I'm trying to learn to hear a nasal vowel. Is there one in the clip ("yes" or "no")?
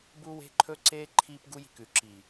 no